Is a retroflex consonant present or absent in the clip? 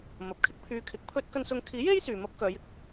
absent